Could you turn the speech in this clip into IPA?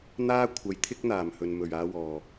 n̪ aː˥ kʷʰ ɐ˨˧ j t̪ʰ ɪ˥ k̚ n̪ aː˨˩ m h ɵ˨ n m ɵ˨˩ ɥ aː˧ w ɔː˨˩

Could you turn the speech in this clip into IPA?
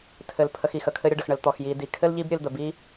tʰ ɘ˩ l pʰ ə˨ x i˩ x ə˩ kʰ ɘ˦ ɾʲ ə˦ ɖ ə˩ x ɳ ə˨ l t̪ ɔ˩ x j i˨ d i˩ kʰ ɘ˥ l ʎ i˦ b ɾʲ ɨ˨ l d̪ ə˩ b i˦

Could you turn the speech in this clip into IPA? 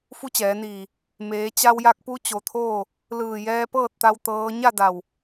f u˧˥ t͡ɕ ɛː˩˧ n iː˧˩ | m eː˩˧ t͡ɕ a˧ w j a˧ k̚ p u˧˥ t͡ɕ o˩ t̪ʰ oː˥˨ | l ɯː˧˩ j ɛː˧ p ɤː˥˨ t̚ t̪ a˧ w t̪ ɤː˧˥ ɲ a˥˨ d a˧˩ w

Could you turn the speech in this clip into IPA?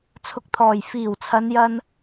t͡sʰ ʊ˧ k̚ t̪ʰ ɔː˨˩ j f iː˨˩ w t͡sʰ ɐ˨˧ n j ɐ˧ n

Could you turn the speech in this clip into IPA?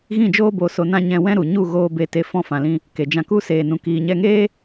ɣ ĩ˦˨ d͡ʒ oː˦ b o˧ s o˧ n ã˦ ɲ ɛ̃˧ w ɛ̃˦ ɾ u˨ ɲ u˦˨ ɣ oː˧ b e˧ t e˧ f ɔ̃˧ f ã˨ l ĩ˧ | k e˨ d͡ʒ ã˧ k u˦ s eː˧ n ũ˧ k iː˧ ɲ ɛ˦ ŋ eː˦

